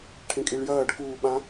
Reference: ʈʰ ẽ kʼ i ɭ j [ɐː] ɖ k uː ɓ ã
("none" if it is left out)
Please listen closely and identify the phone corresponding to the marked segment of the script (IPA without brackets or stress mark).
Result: ɐː